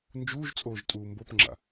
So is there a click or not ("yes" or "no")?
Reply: yes